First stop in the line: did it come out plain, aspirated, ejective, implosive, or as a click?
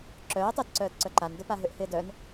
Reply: click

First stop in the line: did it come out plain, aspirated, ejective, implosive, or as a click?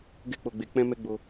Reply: plain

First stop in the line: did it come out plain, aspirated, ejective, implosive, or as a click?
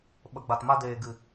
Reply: implosive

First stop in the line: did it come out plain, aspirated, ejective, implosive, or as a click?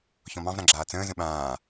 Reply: click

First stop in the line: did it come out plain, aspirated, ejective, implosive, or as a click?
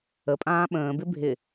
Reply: ejective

